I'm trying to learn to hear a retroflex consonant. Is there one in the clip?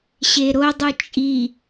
no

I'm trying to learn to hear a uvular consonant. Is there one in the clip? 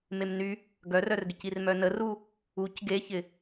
no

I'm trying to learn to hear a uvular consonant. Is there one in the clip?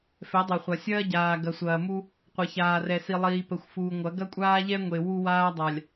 yes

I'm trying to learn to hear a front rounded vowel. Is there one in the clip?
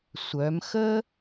yes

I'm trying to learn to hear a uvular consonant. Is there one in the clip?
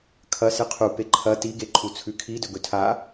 yes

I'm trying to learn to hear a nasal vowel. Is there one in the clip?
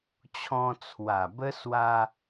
yes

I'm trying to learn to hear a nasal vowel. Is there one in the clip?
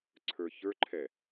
no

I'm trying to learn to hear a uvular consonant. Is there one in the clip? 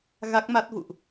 no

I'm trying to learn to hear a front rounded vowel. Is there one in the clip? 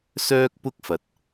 yes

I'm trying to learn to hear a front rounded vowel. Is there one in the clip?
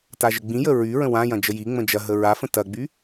yes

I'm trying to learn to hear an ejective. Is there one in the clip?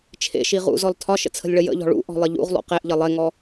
no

